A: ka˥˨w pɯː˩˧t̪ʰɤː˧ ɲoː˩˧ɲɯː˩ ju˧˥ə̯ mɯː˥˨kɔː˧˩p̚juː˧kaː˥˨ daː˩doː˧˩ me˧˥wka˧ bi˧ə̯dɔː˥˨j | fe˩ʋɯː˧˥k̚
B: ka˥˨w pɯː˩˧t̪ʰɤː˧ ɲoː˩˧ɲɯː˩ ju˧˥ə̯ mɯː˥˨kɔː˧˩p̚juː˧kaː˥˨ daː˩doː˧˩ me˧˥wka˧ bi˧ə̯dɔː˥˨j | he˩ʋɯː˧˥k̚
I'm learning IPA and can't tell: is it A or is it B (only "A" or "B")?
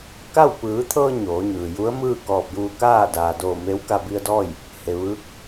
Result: B